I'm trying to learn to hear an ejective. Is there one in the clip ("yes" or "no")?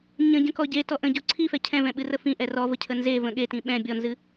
no